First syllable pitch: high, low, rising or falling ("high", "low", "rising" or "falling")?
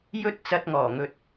high